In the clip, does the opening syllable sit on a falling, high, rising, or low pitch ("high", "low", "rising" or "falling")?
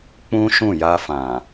high